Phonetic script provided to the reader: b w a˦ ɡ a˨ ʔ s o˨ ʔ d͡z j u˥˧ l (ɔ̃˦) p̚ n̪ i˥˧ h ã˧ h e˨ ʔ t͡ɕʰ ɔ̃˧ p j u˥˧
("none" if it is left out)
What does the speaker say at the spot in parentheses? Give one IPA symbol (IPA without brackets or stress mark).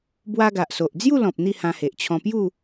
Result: ɔ̃˨